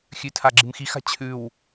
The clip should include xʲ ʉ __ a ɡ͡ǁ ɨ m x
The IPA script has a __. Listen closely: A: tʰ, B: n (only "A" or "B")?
A